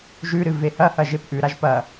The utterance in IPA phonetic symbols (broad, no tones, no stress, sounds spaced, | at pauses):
ʒ ʉ ɾ ɨ v e h ɐ h ɐ ʒ e p ʔ ʉ ɾ a ʒ p ɐ